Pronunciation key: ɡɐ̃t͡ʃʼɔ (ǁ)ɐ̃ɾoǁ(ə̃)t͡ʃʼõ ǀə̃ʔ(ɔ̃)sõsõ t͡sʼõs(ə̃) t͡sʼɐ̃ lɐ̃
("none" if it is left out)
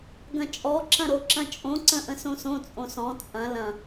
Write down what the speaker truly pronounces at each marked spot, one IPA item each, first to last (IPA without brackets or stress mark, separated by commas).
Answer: ǁ, ɐ̃, ə̃, ɔ̃